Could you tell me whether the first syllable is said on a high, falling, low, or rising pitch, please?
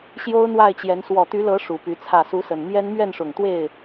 high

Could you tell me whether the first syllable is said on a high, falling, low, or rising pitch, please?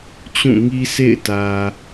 falling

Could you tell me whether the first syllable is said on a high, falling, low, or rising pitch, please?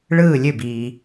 falling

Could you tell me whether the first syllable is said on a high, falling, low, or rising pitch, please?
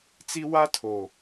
high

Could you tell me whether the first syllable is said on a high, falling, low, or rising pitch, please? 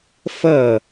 falling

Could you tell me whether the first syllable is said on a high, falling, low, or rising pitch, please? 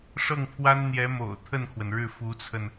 falling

